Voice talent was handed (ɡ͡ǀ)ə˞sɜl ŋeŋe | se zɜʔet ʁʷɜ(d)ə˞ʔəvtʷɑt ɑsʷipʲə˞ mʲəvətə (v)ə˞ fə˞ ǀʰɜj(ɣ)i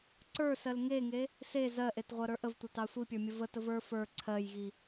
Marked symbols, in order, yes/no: no, no, yes, yes

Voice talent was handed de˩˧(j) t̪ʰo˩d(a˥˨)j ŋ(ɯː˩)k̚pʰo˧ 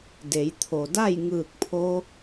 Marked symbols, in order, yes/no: yes, yes, no

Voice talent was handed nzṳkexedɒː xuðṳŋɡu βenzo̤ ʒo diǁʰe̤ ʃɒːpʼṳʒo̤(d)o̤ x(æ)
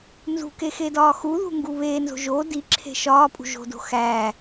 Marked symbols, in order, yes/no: yes, yes

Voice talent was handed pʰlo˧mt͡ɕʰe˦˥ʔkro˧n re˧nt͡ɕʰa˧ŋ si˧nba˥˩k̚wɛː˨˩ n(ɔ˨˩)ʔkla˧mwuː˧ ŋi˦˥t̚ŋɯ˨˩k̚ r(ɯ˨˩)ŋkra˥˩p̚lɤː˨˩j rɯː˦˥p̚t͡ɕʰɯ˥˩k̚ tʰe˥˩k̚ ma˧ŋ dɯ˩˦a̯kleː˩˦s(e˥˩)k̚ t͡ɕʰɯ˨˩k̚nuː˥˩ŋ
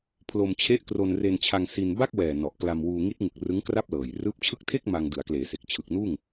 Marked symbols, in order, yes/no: yes, no, no

